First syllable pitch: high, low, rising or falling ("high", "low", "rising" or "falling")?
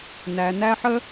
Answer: low